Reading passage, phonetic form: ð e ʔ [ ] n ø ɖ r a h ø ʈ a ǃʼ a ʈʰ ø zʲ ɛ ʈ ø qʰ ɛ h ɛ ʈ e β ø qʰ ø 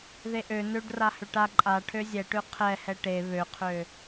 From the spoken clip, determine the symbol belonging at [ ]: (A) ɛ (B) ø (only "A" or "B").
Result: B